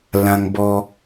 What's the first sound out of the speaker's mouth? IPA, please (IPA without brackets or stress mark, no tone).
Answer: l